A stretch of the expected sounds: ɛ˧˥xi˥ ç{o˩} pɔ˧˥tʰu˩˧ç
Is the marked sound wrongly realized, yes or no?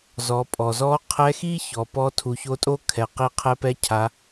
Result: yes